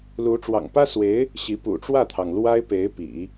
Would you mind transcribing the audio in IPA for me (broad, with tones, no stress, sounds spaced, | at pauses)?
l u˧˥ ʈ͡ʂ w ɑ̰˨˩ ŋ p ä˥ s w e˧˥ ɪ̯ | ɕ i˧˥ p ṵ˨˩ ʈ͡ʂ w ä˥˩ t̪ʰ ɑ˩ ŋ l w a˥ ɪ̯ p e˧˥ ɪ̯ p ḭ˨˩˦